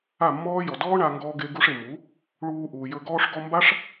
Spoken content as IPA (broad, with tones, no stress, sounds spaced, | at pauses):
a˦˨ mː ɔː˦ j ɔ˨ d ɔː˦ ɳ a˧ ŋ ɡ ɔː˦ ɡ e˦ ɡ u˦ ʂ e˨ m u˨˦ | ɭ uː˧ ʔ uː˨ j ɵ˧ ɡ ɔː˧ ʂ ɡ ɔ˧ m b a˦ ʂ